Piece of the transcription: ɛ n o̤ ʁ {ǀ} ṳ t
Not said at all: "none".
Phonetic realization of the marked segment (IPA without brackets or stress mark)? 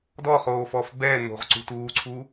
ǀ